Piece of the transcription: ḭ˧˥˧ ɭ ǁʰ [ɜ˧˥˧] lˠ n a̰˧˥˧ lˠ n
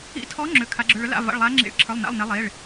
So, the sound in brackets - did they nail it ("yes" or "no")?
no